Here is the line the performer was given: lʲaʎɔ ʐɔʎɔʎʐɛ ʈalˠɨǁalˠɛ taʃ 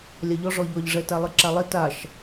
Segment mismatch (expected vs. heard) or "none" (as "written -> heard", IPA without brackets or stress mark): ʈ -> t